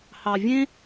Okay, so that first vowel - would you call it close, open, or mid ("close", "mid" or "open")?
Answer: open